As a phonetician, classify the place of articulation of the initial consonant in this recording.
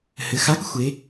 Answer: glottal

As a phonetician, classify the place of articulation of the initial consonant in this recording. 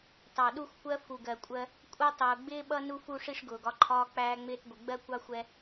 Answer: alveolar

